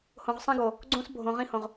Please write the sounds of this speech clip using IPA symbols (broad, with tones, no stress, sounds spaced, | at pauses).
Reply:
h õ˨ ʁ sˤ ĩ˦ ɡ o˨ | ɡ͡ǀ õ˦ s bʱ õ˨ ʁ ĩ˦ h õ˨ ʁ